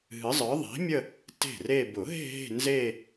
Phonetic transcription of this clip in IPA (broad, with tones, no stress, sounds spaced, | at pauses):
ɦ ɨ˨˥ zˤ ə˞˨˥ ðˤ i̤˨˥ mʲ ə˥˧ | t e̤˥˩ r e˥˧ b ʊ˨˩˦ ɦ e̤˥˧ ɦ e̤˥˧ n z e˥˧